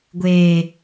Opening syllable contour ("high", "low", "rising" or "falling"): low